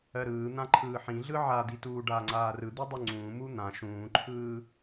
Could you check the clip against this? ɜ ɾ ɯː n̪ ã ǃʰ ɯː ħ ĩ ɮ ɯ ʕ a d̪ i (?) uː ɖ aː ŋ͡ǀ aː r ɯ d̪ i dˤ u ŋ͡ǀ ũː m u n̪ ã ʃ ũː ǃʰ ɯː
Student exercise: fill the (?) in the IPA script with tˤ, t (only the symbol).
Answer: t